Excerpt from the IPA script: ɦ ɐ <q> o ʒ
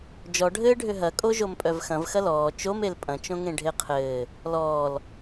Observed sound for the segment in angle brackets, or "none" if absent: kʼ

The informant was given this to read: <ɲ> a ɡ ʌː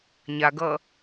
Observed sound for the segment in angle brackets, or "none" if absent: ɲ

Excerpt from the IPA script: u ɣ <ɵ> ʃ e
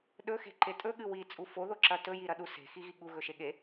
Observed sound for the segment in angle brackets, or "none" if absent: ɵ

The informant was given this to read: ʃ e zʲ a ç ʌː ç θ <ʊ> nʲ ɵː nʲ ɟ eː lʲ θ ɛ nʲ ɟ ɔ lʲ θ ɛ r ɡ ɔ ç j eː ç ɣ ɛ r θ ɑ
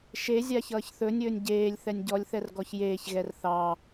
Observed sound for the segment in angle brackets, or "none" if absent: ɵ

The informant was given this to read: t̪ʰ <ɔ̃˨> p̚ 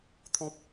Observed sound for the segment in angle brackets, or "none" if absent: ɔ̃˦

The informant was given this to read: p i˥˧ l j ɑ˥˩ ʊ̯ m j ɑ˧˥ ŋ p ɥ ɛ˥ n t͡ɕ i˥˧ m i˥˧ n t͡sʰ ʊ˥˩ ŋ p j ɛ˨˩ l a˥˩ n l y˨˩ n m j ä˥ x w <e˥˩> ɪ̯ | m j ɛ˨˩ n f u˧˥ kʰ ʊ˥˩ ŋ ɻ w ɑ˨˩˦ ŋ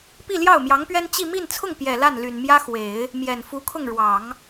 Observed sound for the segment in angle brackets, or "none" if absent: e˨˩˦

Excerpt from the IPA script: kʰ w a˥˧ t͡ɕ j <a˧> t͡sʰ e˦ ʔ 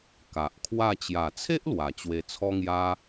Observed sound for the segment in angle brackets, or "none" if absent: a˨˩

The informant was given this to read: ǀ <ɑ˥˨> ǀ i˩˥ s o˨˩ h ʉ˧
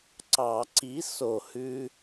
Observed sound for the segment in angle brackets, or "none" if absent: ɑ˨˩˦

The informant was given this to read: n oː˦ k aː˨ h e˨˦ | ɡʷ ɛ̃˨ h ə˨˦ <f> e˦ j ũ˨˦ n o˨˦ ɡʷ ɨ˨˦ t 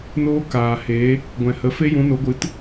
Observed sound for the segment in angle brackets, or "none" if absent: f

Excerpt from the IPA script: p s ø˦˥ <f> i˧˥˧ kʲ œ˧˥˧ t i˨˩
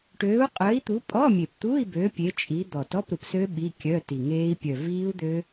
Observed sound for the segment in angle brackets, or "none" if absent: ɓ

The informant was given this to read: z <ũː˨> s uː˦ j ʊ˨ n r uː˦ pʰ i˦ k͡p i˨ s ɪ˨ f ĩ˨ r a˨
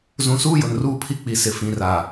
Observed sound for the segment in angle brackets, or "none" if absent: ũ˨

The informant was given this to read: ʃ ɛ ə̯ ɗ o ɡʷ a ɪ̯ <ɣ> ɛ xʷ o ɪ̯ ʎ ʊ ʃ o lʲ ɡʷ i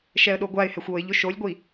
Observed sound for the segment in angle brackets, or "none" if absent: h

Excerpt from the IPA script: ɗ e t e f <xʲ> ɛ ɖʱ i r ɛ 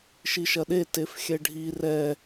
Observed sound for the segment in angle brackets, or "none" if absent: xʲ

